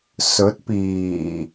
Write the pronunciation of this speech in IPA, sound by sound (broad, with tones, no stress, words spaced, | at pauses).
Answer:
sɵ˨˥t̚piː˨˩